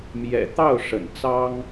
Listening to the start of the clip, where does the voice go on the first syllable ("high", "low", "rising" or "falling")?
low